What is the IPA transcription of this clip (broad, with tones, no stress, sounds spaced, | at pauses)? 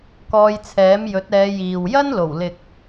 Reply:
k ɔː˧ j t͡sʰ ɛː˨˥ m j ɵ˨˥ t̚ ɛː˨˧ j iː˨ w j ɐ˥ n l o˨˩ w l ɪ˨ k̚